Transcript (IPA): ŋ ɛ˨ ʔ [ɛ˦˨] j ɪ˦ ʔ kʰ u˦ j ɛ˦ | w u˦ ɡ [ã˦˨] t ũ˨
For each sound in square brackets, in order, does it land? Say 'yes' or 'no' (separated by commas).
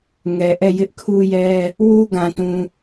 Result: yes, no